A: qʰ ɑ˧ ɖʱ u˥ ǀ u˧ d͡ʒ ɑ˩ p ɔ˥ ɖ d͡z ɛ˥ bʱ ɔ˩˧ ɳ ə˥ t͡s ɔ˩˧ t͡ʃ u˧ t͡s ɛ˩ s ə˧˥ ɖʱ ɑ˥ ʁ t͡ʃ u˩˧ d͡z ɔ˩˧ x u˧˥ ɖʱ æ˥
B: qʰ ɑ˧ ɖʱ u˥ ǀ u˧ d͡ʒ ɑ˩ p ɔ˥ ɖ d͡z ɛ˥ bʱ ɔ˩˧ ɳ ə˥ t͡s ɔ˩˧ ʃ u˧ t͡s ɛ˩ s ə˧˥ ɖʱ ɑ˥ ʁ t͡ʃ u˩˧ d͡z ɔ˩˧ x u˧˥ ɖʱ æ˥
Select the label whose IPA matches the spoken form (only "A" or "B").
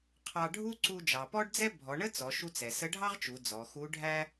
B